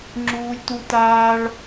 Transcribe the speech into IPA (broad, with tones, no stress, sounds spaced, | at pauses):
ŋ͡ǁ uː˧ lʲ t u˧ t aː˧ ɭ